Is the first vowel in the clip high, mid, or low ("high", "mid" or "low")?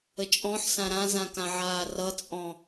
mid